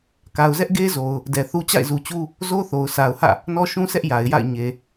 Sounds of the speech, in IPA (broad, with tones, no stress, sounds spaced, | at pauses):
k a˨ ʊ̯ z ɛ˦ ʔ ɡ e˦ z o˨ ʊ̯ | d ɛ˨ θ u˦ t͡ɕ a̰˦˨ ɪ̯ z u˨ t͡ɕ u˦ | z o˦ θ o˨ ʊ̯ sʰ a˨ ʊ̯ h ä̰˦˨ | n ɔ˦ ʃ ũ˦ s ɛ˦ ʔ j a˨ ɪ̯ j a̰˦˨ ɪ̯ ɲ e˨